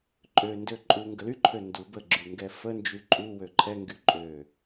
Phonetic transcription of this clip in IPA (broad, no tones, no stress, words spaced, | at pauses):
ǃʼø ndøǃʼuŋɡə lyǃʰø ndu bəɡ͡ǁy ŋɡɛfənd͡ʒy ǃʼuwø ǃʰɛŋɡy ǃʼø